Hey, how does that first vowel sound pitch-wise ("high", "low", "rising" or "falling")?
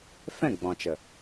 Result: falling